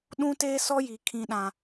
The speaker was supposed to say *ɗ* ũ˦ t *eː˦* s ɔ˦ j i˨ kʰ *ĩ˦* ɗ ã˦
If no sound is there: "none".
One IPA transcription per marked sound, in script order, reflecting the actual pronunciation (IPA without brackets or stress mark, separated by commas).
ɗ, eː˦, ĩ˦